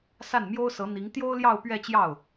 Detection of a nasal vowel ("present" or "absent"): absent